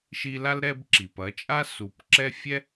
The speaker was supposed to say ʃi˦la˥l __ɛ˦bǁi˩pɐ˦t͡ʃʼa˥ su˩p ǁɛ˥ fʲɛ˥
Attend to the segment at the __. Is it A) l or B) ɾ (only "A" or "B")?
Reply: B